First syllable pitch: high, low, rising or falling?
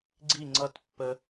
falling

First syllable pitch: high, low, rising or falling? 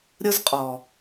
high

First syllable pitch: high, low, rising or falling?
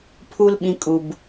high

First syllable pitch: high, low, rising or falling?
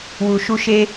low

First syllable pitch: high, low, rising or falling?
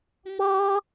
high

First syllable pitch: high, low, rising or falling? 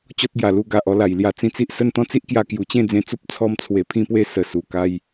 high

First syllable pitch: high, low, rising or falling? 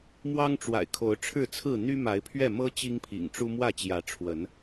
high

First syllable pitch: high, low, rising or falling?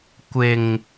low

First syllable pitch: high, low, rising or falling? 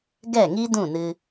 falling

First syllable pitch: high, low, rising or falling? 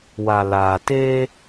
low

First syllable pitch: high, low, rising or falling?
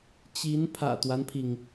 rising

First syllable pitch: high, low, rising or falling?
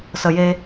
high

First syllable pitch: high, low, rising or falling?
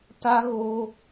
high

